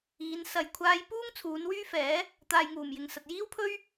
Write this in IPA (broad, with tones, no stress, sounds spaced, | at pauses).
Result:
iː˨˧ n s ɐ˨ j kʷʰ aː˧ j p uː˥ ŋ t͡sʰ uː˨˧ n w yː˥ f ɛː˨˥ | t̪ aː˨ j ŋ uː˨˩ m j ɪ˨ ŋ s ɐ˨ t̚ j iː˥ w pʰ ɵ˥ ɥ